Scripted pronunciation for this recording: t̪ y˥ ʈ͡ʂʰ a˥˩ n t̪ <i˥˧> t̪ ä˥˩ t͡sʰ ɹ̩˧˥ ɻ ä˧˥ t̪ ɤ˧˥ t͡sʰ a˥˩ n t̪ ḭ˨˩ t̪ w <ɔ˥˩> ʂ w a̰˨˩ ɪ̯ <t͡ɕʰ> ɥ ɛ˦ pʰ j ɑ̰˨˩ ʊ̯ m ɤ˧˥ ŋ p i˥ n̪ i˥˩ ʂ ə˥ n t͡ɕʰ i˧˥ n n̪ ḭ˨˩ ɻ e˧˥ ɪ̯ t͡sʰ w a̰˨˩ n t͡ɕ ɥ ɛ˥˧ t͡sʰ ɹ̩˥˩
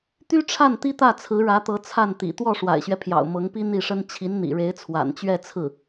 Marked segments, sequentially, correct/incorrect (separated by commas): incorrect, correct, incorrect